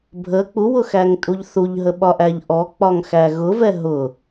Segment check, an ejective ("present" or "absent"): present